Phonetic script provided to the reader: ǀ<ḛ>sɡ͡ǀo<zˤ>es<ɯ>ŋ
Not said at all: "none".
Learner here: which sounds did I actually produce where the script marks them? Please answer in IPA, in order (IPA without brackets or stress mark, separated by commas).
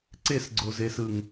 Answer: e, z, ɯ